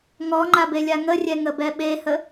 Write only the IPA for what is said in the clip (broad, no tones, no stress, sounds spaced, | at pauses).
ŋ ɔ ŋ͡ǃ a b e lʲ a ŋ ə rʲ ɛ ŋ ə b ɛ ɓ e h ə